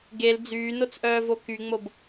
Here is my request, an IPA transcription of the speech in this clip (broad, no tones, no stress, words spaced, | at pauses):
ɡel d͡zyːnot͡sʔœːvo kyŋ͡mob